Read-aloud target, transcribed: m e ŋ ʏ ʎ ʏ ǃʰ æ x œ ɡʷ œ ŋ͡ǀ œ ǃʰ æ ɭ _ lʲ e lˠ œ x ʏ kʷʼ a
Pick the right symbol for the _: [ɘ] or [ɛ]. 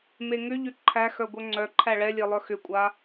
ɛ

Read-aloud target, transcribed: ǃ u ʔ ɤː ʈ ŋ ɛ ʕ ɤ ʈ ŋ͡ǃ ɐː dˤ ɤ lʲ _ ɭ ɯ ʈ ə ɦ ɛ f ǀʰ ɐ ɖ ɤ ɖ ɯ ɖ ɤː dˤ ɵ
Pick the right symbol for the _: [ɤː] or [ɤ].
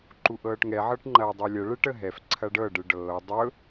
ɤ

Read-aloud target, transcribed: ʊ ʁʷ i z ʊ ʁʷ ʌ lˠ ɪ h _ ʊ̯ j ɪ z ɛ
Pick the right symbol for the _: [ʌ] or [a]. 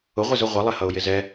ʌ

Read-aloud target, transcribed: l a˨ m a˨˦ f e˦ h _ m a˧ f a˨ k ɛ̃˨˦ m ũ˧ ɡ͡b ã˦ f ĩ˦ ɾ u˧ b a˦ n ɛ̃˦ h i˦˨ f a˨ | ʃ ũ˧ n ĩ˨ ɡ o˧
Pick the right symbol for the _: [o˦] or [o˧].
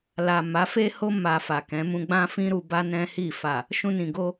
o˦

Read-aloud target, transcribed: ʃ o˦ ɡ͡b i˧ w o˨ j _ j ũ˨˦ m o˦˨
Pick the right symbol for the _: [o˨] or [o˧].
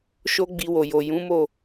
o˨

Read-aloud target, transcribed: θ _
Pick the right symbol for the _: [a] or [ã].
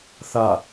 a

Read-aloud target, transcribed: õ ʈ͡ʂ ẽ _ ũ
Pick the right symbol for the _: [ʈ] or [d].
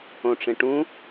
ʈ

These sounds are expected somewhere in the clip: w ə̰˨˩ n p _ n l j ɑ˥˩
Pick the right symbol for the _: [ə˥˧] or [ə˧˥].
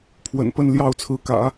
ə˥˧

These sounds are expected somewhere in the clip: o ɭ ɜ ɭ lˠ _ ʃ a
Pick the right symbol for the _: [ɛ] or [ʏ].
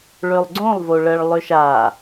ʏ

